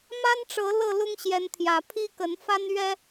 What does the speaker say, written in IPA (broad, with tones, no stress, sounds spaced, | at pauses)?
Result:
m a˦ n ʈ͡ʂ ɤ˨˦ l ɤ˥˨ l ʊ˦ ŋ ɕ j ɛ˨˦ n t̪ʰ j ä˨˦ pʰ i˦ k ə˨˦ n f a˦ n ɥ ɛ˦